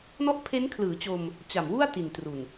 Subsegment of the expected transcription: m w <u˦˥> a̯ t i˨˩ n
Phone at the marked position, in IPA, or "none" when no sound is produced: u˥˩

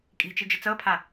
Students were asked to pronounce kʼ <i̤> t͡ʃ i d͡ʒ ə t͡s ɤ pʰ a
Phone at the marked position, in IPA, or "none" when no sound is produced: i̤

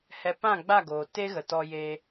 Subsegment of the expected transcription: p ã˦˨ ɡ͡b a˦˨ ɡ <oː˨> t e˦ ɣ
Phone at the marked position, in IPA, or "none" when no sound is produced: oː˨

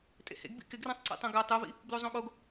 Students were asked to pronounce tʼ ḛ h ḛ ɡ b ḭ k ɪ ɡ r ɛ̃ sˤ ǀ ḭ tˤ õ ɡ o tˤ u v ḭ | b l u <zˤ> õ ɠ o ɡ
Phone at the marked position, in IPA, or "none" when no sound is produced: zˤ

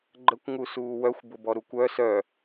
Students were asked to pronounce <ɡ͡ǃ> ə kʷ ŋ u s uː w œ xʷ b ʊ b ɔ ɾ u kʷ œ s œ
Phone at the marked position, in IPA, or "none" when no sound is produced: ɡ͡ǃ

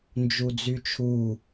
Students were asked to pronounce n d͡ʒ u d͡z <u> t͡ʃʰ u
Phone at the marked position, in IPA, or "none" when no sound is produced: y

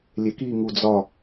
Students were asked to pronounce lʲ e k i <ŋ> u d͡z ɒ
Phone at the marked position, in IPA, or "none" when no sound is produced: ŋ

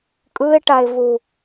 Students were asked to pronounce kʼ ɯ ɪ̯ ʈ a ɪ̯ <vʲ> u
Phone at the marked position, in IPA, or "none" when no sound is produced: v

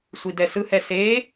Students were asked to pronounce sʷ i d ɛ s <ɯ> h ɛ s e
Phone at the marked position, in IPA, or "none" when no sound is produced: ɯ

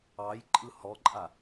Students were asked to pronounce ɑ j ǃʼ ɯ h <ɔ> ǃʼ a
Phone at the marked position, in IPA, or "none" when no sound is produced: ɔ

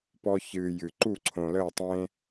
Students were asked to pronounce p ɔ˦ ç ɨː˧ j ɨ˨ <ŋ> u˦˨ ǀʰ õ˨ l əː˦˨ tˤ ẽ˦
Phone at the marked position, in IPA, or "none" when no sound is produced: ǃ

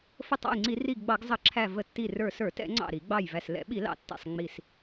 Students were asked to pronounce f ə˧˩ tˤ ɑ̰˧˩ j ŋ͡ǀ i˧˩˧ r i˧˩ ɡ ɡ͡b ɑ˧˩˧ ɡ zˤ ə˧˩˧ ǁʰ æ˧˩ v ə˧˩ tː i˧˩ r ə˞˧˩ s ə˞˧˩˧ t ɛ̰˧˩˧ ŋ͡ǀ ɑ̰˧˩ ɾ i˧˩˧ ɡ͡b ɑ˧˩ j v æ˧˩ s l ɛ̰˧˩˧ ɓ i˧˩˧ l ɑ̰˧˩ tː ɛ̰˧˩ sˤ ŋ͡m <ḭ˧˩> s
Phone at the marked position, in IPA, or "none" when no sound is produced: i˧˩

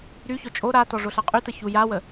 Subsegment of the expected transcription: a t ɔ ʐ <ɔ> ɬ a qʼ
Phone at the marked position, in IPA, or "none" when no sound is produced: o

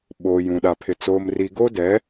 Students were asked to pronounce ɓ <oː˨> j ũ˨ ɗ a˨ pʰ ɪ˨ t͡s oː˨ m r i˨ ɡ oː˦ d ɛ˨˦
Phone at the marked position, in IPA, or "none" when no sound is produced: oː˨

